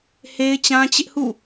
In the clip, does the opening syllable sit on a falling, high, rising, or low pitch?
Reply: high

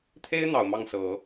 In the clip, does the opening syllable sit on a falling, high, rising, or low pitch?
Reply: high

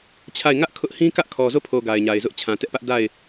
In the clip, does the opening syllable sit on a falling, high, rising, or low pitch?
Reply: falling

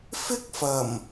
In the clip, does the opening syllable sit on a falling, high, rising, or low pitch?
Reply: high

